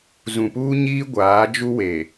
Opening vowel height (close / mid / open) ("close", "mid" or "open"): close